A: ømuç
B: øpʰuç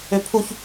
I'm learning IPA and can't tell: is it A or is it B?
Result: B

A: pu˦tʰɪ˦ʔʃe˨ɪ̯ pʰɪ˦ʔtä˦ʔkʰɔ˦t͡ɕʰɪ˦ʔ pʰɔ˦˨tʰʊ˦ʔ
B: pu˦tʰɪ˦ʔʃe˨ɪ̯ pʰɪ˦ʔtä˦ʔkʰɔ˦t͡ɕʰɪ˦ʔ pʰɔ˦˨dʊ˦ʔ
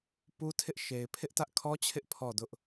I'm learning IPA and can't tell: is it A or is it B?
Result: B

